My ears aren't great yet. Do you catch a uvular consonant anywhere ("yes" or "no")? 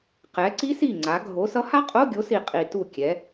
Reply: yes